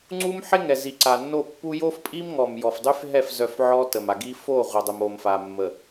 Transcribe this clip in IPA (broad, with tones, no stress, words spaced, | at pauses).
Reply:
ŋ͡ǀu˦mħe˦ŋɛ˨ zi˨ǀa˨nːo˦˨pːu˦ jo˦fpʼi˦mŋɔ˨m jɔ˨fdˤy˦fɦɛ˦˨f zœ˦˨fʕɔ˦ tə˨ma˨ɡi˦ fo˦˨ʁʷə˨ dˤə˨mo˨mfa˨mːə˨